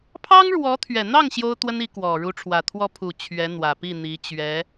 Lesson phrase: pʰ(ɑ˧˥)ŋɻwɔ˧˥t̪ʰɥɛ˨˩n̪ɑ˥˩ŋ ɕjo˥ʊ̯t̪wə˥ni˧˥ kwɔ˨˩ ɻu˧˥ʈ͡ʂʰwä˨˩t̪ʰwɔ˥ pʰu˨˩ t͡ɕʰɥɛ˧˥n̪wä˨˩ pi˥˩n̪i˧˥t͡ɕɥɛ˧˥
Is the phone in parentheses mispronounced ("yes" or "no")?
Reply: yes